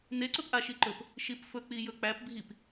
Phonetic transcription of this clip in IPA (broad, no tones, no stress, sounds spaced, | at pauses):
n e ǀ ɵ p ʔ a ʃ i ǃ ɵ p | ʃ i p f ɵ k͡p i j ɵ k͡p æ p bʱ i p